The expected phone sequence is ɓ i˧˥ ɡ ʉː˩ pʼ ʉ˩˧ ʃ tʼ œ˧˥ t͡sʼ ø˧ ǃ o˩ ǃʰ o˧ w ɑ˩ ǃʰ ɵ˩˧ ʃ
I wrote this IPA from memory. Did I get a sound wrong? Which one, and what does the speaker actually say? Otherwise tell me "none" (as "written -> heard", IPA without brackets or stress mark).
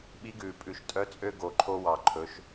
ǃ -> ɡ